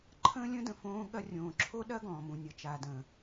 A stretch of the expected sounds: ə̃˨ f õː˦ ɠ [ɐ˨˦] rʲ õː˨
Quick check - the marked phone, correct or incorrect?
incorrect